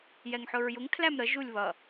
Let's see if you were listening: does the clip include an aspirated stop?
yes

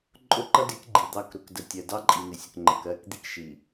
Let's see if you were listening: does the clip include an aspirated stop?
no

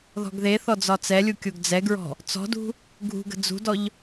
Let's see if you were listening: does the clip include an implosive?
no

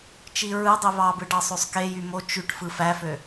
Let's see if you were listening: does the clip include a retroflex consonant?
yes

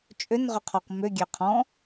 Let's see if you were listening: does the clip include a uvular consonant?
yes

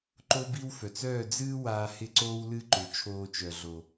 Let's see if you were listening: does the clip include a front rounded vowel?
yes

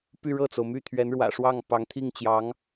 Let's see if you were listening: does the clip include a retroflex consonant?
yes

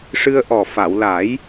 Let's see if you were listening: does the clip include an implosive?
no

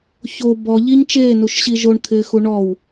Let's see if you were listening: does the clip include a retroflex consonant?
yes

